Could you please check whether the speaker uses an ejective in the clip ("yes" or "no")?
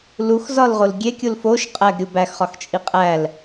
yes